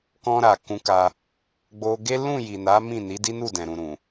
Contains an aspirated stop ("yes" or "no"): no